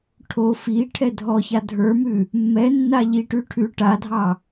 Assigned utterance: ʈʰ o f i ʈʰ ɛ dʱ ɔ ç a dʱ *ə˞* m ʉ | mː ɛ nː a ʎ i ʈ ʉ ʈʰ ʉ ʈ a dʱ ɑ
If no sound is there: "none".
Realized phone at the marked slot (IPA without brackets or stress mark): ə˞